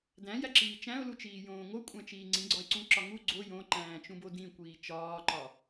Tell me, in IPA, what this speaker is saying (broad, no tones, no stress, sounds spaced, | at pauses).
d æ̃ j æ ǁ iː t͡ʃ æ̃ ʊ̯ l u t͡ʃ iː j õː ŋ o kʷʼ æ̃ t͡ʃ iː ŋ͡ǀ ĩ ɡ͡ǀ ɒ ɪ̯ ǀ ũ ǁ ɒ ŋ u ɡ͡ǀ o j õ ǃ æ̃ː t͡ʃ ũ b o d ĩ kʷ iː t͡ʃ ɒː ǃ ɒ